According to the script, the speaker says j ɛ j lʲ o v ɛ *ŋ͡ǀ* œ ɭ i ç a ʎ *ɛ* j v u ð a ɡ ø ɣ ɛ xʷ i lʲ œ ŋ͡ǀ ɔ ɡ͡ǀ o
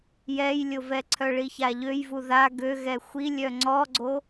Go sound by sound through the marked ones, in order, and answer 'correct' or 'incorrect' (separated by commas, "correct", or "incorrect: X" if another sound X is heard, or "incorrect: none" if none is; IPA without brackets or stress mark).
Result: incorrect: ǀʰ, incorrect: ø